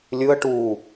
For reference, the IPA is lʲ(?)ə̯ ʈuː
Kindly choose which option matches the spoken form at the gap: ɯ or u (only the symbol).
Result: ɯ